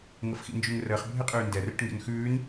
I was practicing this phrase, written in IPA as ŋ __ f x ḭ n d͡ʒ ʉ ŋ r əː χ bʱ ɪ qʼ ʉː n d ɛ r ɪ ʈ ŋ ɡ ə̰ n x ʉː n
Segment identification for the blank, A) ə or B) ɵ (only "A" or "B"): A